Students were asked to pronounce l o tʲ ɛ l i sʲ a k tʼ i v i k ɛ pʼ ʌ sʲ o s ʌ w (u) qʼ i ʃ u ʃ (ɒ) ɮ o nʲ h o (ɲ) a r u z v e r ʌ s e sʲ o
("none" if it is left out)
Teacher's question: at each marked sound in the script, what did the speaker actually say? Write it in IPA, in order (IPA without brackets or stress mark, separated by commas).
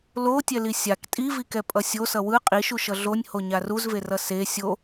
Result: ɯ, ʌ, ɲ